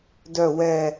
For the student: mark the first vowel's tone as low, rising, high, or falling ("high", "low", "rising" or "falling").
low